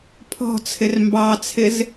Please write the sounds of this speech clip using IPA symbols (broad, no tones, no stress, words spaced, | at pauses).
pʰɔ̤ t͡sʰɪrmbɑt͡sʰɪz